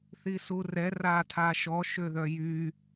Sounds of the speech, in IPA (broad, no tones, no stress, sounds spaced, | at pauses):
θ i s u r ɛ r a tʰ a ʃ ɔ ʃ ø ð œ j y